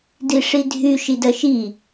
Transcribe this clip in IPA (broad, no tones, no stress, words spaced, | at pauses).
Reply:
diʂidʱy ʃidɜʃi